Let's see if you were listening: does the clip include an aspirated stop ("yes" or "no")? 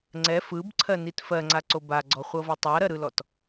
yes